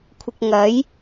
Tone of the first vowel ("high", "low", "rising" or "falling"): low